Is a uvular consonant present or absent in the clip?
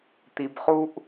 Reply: present